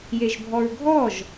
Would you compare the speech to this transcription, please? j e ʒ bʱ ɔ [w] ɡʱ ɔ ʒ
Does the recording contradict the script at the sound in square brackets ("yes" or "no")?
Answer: yes